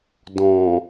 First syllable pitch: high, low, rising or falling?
low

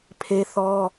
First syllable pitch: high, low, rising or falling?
high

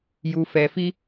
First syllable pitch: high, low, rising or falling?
low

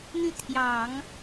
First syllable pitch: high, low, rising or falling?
falling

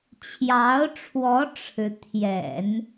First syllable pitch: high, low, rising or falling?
rising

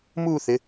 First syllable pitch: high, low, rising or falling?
falling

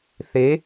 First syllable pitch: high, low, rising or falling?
rising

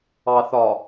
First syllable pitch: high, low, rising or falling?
low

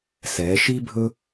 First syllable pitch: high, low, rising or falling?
rising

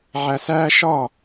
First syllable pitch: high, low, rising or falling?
low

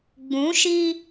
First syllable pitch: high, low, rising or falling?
rising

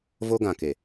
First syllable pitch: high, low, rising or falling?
high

